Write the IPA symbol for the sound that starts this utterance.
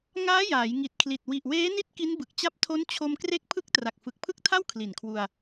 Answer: ŋ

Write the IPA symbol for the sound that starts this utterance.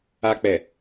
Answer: a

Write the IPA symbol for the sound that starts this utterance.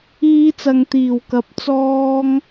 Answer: iː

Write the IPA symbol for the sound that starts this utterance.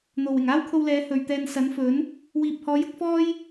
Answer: n̪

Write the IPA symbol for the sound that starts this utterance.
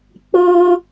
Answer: k͡p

